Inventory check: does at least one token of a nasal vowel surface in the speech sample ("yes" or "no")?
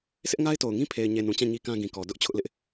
yes